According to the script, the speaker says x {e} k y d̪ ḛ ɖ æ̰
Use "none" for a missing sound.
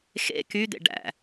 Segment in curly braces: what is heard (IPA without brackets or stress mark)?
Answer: ḛ